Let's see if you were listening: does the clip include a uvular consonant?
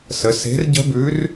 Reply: no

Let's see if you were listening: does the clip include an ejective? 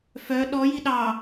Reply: no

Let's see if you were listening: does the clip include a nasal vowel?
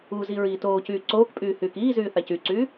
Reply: no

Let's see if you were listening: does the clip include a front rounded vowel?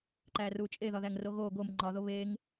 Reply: no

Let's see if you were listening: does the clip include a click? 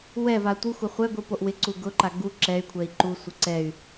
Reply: yes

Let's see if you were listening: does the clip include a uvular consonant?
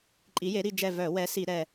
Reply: no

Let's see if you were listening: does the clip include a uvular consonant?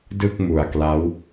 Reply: no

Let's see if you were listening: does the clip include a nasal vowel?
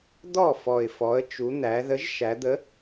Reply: no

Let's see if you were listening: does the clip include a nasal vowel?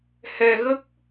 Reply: no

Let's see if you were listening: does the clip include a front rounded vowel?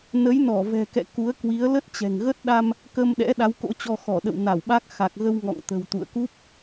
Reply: no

